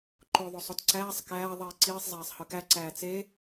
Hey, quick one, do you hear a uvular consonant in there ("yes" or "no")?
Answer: no